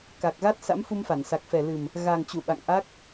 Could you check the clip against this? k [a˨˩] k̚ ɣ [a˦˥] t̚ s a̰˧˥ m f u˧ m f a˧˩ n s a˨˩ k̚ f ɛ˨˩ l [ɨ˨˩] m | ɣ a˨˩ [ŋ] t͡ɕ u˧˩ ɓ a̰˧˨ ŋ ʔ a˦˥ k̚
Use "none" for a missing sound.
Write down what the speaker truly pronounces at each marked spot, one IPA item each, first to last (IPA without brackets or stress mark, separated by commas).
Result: a˨˩, a˦˥, ɨ˨˩, ŋ